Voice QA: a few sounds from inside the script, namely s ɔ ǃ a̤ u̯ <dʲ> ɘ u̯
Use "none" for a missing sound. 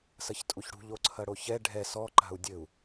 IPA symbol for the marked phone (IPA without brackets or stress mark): dʲ